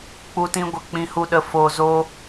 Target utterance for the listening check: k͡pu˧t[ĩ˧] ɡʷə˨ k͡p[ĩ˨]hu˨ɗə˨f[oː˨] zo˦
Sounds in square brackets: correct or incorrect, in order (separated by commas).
correct, correct, correct